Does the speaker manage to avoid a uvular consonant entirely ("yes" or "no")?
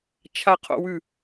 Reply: no